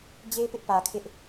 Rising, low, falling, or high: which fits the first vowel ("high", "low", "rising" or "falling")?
high